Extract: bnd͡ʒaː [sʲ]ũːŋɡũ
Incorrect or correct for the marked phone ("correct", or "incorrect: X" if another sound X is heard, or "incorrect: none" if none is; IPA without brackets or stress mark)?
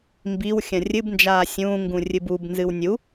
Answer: correct